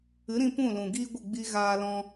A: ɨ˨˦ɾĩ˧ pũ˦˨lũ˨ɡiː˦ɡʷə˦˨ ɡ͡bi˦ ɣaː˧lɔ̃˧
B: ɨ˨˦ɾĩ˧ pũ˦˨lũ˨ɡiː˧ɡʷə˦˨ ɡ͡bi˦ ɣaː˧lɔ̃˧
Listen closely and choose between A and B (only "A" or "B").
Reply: A